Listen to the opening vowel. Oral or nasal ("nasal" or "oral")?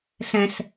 nasal